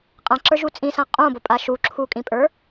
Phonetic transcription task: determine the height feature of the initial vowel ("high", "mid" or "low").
low